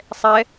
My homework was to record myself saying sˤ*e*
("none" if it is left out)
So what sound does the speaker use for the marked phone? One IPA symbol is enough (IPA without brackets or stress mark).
ɛ